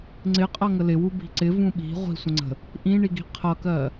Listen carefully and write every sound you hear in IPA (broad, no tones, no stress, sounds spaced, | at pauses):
ŋ͡ǀ ɪ qʼ ʌ ŋ ə l ɪ w u b i̤ ǀ ɪ v ũ ɓ i̤ ʁʷ i̤ sʷ ə̃ ŋ͡ǀ ə̤ | ʔ ĩ ɳ i ɡ i̤ qʰ ʌ k ɜ